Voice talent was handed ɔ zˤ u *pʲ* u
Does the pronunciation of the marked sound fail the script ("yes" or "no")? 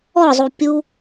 no